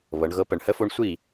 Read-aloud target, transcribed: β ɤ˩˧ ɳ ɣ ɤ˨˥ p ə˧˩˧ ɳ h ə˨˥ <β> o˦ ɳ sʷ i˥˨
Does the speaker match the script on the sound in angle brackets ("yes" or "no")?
no